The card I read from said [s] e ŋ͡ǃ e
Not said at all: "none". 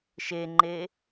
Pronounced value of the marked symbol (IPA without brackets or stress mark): ʃ